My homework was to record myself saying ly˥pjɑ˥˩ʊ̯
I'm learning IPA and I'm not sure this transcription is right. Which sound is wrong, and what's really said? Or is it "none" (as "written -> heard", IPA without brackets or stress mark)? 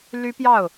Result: none